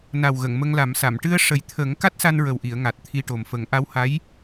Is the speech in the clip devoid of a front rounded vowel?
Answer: yes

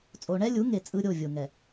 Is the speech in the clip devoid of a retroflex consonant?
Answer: no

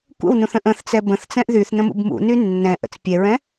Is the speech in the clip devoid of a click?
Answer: yes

